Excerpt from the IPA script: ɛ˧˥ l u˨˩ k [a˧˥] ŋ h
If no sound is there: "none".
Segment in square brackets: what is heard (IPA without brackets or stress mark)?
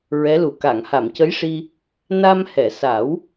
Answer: a˨˩˨